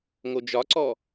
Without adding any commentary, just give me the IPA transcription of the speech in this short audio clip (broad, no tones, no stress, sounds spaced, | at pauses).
ŋ o d͡ʒ ɒ ǀ ɔ